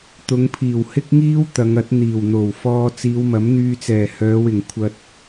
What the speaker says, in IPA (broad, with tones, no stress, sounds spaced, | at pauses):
t̪ ʊ˨˧ ŋ pʰ iː˨˩ w h ɪ˥ k̚ ŋ iː˥ w t̪ ɐ˨˧ ŋ ɐ˨˥ t̚ n̪ iː˨˩ w n̪ o˨˩ w f ɔː˧ t͡s iː˨˧ w m ɐ˨˥ m n̪ yː˧ t͡s ɛː˨˩ h œː˨˧ w ɪ˨˩ ŋ kʷʰ ɐ˨ t̚